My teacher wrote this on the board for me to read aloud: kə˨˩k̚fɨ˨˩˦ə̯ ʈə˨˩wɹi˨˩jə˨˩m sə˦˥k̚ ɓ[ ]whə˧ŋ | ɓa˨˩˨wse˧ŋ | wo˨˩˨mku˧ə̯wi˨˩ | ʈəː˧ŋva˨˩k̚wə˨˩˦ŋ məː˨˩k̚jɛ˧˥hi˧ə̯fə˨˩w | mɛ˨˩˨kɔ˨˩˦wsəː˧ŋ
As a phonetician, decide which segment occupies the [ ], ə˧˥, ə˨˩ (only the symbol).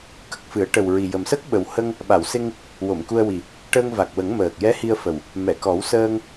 ə˨˩